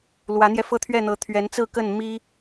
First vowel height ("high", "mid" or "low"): low